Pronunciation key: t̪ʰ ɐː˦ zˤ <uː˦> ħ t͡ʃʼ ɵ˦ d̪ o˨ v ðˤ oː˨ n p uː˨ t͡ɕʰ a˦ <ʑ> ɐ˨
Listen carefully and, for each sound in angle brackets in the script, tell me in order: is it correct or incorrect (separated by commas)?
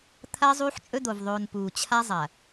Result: correct, incorrect